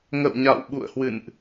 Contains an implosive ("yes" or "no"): yes